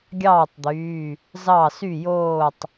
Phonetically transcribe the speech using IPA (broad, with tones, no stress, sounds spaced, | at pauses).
ɡʲ ɑː˥˨ tˤ d̪ yː˩˧˩ | z ɑ˥˨ s y˥˨ j oː˥˨ tˤ